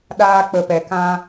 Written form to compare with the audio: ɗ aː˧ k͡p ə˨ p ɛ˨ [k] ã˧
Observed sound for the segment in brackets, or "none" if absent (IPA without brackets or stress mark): k